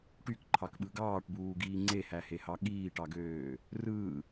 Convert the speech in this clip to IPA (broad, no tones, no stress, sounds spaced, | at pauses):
ʈ y k ǃʰ ɑ k ɓ ɯ ɡ ɑː ʈ b uː ɡ iː ŋ͡ǀ e h æ h e h ɑ ɠ iː ʈ ɑ ɡ øː | r ɯː